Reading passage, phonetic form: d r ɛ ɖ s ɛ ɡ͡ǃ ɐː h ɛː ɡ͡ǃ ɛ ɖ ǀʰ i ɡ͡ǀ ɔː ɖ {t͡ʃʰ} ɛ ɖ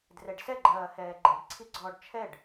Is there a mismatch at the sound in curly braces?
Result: no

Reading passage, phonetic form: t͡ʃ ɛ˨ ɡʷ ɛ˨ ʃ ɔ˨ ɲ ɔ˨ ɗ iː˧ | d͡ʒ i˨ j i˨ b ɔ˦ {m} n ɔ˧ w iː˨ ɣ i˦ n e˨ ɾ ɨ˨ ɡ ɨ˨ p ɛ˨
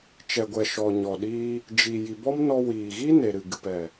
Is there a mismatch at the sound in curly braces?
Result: no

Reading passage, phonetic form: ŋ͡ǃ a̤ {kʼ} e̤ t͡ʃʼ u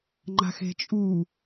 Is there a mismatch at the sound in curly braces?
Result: yes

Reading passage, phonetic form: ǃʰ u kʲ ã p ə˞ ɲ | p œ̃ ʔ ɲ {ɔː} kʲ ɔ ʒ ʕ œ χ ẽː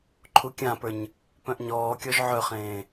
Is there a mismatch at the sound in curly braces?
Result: no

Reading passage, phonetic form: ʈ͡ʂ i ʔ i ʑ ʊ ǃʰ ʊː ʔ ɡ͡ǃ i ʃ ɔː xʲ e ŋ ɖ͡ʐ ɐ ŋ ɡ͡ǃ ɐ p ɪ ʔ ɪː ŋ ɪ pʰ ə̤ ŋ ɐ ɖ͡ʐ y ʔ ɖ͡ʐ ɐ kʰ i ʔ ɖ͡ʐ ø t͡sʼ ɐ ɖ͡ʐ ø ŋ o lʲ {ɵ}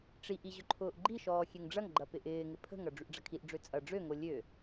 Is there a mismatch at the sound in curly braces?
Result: yes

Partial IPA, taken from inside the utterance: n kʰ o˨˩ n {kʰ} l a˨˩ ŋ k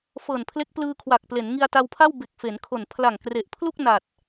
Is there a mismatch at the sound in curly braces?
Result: yes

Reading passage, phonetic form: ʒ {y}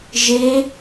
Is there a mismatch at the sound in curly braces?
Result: yes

